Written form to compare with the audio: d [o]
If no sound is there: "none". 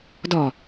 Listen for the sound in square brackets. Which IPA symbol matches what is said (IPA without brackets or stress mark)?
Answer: ɔ